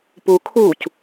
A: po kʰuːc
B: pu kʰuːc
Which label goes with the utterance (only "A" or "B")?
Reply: B